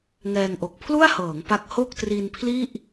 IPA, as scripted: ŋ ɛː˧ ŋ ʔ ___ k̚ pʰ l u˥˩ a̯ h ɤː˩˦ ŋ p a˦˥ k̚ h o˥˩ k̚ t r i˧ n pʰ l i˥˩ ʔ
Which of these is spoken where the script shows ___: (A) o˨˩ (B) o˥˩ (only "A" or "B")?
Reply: A